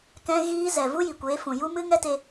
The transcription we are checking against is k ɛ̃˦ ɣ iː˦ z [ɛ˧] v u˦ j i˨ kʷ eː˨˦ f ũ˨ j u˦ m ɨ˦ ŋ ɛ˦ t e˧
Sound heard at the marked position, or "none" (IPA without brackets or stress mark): ɛ˨